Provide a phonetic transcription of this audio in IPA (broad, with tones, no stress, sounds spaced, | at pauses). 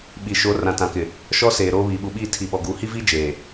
ɓ i˨ ʃ o˨˦ r ã˨ t ã˨ k ɪ˨ | ʃ ɔ˦ s eː˨ ɾ oː˦ β iː˨ ɓ u˨ ɓ iː˦˨ tʰ i˨ ɓ ɔ˨ ɡ uː˨ h i˦ v iː˦ d͡ʒ eː˨